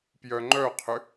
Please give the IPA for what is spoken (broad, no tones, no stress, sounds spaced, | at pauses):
p j œ ŋ͡ǃ œ qʰ ʏ